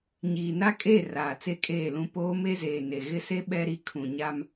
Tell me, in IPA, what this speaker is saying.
ɲ iː˨ n a˦ kʼ e˦˨ r aː˨ t͡s e˦ kʼ eː˦˨ l ũ˦ p oː˦ m e˦ z eː˨ n e˨ ɣ ɪ˦ s e˦ ɓ ɛ˦ ɾ i˦ kʰ ũ˨ ɲ a˦ m

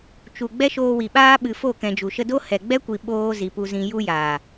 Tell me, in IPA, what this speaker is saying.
t͡ʃ u˨ ɡ͡b ɛ˦ ʃ oː˧ w i˨ ɓ aː˦ ɓ ɨ˨ f o˦˨ k ɛ̃˧ d͡ʒ u˨ ʃ ə˧ d o˦ h ɛ˨ ɡ͡b ɛ˦ kʷ i˨ ɓ oː˧ z i˨ p u˧ z ĩ˧ j u˦ j aː˨

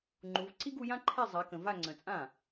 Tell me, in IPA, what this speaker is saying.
ŋ͡ǃ u˨˦ v ǀ i˥ ɡ u˨˦ j ã˥ ǃʰ e˥˧ zˤ a˨˦ k ə̃˨ v a˥˧ ŋ͡ǀ ə̃˨ t͡sʼ ã˥˩

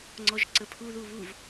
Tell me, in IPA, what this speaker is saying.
ŋ͡ǀ ɔ ʒ ǀ ə pʰ u ð u β u v

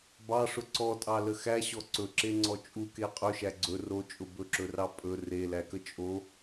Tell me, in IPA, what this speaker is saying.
b ɑ ʂ ʊ ǀ ɔ tʼ ɑ l ə x æ ɕ ɔ ǀ ɵ ǁ e ŋ͡ǀ ɔ t͡ʃʼ u k e qʼ ɵ ʃ æ ɡ͡ǀ ɵ r o t͡ʃʼ ʊ b ɵ ǁ ɵ r ɑ pʼ ɵ r e l æ k ə t͡ʃʼ o

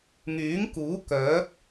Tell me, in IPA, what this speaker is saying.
ŋ yː˨˥ ŋ k uː˨˥ k œː˨˥ p̚

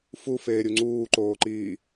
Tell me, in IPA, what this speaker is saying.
f u f eː ɾʲ u ŋ͡ǀ uː ǃ oː ǃ iː

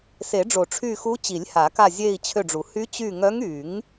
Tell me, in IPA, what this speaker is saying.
s e˨˩˦ ɖ͡ʐ o˨˩˦ ʈ͡ʂʰ y˦˨ x u˧˥ t͡ɕ i˨˩˦ lʲ h a˨˩˦ k a˦˨ zʲ e˦˨ i̯ t͡ɕʰ ø˦˨ ɖ͡ʐ u˨˩˦ h y˧˥ t͡ɕ y˦˨ ŋ œ˧˥ ŋ y˨˩˦ ŋ

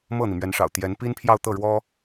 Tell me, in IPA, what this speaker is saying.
m ɤ˥˩ n̪ i˩ m ɥ ɛ˧˥ n ʂ ɑ̰˨˩ ʊ̯ t̪ j ɛ˧˥ n p i˥ n pʰ j ɑ˥˧ ʊ̯ t̪ ɤ˥˩ ɻ w ɔ˥

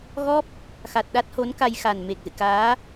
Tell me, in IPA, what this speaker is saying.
ɣ ɔ˦˥ p̚ | x a˨˩ t̚ ɗ a˦˥ t̚ h o˨˦ n k a˧ j x a˨˩ n m e˨˩ k̚ z ɨ̰˧˨ k aː˨˦

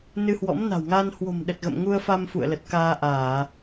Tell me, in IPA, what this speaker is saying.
n ɨ˧ h w ɔ̰˧˥ m n a̤˨˩ w ŋ a˧ n h w o̤˨˩ m ɗ ə˨˩ t̚ ɣ ə̰˧˨ m ŋ u˧ ə̯ f a˧ m f ṵ˧˨ ə̯ l ə˨˩ t̚ k aː˧ ʔ aː˧˩˨

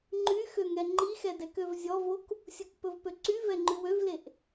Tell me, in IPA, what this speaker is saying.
ŋ͡ǃ y x ø ŋ ɛ ŋ͡ǃ i x ɛ d ɛ k ø v zʲ ɔ v o k | sʲ u k p ɵ v p ø ǀ y v ɛ ŋ͡ǃ ʉ w ø v l e ʔ

